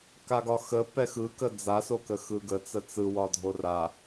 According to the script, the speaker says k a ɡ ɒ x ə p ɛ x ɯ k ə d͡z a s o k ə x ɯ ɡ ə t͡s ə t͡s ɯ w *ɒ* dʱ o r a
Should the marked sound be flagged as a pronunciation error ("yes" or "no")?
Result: no